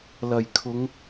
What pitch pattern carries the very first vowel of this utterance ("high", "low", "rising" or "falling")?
low